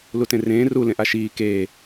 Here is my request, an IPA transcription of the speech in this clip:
lutẽrẽː ru lẽʔaʃiː keː

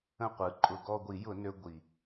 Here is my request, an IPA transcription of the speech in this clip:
ə̃˦˨qʷɯ˩˧ ǃʼʊ˨˩ɡɔ˦˨ɡʷi˧˩˧jʊ˧˩˧ nø˦ ɡʷi˨˩

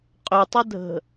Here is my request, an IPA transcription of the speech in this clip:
qʼʏtˤədʱə̤

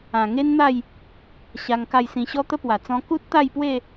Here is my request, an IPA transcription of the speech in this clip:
ã˨˩ŋe˦nn̪a˥˧j | ɕa˧ŋka˥˧jsĩ˧ ɕɔ˦t̪ə˦pwa˨˩ t͡sɔ̃˧ku˦t̚t̪a˥˧jpwe˥˧

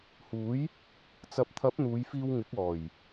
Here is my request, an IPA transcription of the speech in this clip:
huː˨˥j | t͡sɐ˨p̚t̪ʰɐ˨˥p̚ n̪uː˨˧jfiː˧wŋɪ˨˥k̚ ɔː˨˩j

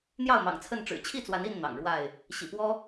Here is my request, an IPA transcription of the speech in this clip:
n̪jɑ˥˨ʊ̯mɑ̰˨˩ŋ t͡sʰə˥˨nʈ͡ʂɻ̩˨˩ t͡ɕʰi˥˨t͡swa˨˦ni˥˨n n̪ɑ̰˨˩ŋ ɻwa˥˨ɪ̯ | ɕḭ˨˩pwɔ˦

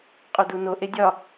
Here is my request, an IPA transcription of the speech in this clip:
qʼoduno ʔedʲɒ

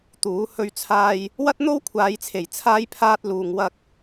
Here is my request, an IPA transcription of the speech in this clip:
t̪uː˨˥ hɵ˧ɥt͡sʰaː˧j | wɐ˥t̚n̪o˥wkʷʰaː˨˧jt͡sʰe˨˩j t͡sʰaː˥jpʰaː˥t̚ luː˨ŋwɐ˧k̚

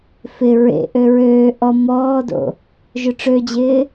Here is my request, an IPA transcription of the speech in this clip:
fɪ ɹḛʔø ɹøː ʔɔ mɔːdo̰ | ʒøʈ͡ʂød͡ʑɪː

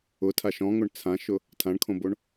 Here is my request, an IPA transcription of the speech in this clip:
ʊtʰaʃ ɔ̃ŋoɳ t͡sʰãʃʊ | tʰãɳkʰõboɳ

